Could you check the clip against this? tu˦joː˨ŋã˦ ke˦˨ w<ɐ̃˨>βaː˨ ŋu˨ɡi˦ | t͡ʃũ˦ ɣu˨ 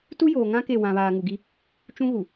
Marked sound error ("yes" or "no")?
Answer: yes